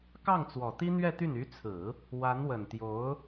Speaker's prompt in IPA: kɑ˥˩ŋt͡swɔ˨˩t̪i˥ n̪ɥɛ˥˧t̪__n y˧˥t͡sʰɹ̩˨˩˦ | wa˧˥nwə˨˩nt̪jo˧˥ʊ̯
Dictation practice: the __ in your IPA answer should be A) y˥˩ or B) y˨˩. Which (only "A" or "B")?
A